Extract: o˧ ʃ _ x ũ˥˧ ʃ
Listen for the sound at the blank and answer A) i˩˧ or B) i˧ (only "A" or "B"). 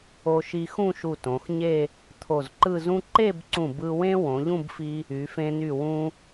B